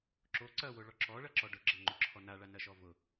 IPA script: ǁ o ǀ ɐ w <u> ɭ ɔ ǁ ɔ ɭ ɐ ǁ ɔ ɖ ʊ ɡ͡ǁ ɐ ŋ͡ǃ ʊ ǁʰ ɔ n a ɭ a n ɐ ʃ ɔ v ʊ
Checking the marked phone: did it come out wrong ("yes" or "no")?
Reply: yes